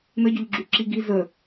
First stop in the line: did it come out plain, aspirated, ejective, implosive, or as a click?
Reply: plain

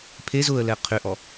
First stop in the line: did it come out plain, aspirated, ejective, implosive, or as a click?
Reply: aspirated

